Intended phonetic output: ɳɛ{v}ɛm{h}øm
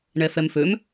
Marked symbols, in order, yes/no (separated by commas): no, no